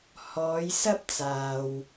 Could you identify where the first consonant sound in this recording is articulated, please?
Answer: glottal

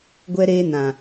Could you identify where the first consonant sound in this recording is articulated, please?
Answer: velar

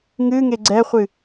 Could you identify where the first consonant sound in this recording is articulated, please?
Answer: velar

